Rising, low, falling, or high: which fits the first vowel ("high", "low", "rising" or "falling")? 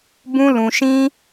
high